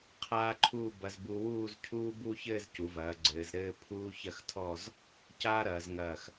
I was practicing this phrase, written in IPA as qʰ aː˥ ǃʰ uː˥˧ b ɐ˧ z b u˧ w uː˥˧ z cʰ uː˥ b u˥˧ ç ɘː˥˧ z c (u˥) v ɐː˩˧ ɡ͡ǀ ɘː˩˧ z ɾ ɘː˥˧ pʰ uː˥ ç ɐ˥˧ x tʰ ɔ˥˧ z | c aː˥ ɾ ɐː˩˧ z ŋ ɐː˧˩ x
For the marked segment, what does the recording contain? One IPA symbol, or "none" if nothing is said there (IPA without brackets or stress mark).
u˩˧